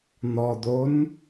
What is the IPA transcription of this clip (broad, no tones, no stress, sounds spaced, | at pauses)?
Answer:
n̪ ɔ d̪ o n